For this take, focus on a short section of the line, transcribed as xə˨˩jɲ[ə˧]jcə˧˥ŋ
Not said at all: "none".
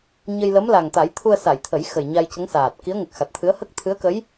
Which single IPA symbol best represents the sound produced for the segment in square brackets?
a˧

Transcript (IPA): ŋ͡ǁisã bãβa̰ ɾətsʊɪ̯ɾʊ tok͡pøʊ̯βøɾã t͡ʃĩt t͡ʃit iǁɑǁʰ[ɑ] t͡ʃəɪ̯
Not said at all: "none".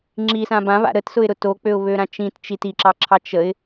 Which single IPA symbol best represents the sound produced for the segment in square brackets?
ɑ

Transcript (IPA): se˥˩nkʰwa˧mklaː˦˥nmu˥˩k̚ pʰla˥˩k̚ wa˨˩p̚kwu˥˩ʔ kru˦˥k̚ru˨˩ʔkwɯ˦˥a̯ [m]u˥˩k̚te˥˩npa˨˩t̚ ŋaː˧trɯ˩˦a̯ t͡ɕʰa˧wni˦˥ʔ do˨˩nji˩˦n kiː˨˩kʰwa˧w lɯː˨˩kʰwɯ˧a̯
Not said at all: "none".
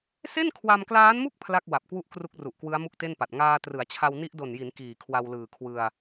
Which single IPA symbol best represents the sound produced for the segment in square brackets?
m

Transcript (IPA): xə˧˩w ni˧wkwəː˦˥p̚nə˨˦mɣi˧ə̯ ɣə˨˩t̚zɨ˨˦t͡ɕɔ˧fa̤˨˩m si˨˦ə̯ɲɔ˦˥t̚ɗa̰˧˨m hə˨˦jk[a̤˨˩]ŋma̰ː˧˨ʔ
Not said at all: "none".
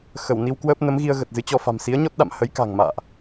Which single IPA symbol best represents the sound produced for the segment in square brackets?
a̤˨˩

